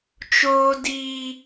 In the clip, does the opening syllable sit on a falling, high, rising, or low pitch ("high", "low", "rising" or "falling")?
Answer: high